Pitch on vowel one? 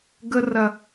high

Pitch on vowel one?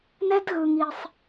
high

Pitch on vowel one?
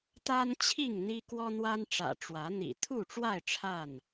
high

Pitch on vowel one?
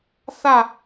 falling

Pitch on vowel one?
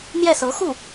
falling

